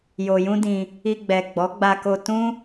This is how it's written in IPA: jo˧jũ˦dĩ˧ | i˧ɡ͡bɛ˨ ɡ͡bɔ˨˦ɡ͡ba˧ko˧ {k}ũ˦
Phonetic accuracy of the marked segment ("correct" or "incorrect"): incorrect